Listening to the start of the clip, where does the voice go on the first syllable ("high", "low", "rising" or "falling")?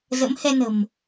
rising